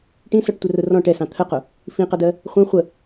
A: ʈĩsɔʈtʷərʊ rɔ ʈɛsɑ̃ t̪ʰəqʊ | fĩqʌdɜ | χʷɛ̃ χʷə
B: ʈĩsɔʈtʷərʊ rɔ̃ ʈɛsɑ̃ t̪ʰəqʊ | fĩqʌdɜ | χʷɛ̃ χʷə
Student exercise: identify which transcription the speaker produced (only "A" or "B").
B